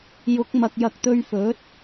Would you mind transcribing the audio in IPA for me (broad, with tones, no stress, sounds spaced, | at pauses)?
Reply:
j ʊ˨˥ k̚ m ɐ˨ k̚ j ɐ˨ k̚ t̪ ɵ˧ ɥ f ɵ˨˥ t̚